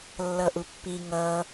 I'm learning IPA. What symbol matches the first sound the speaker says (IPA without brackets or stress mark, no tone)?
lː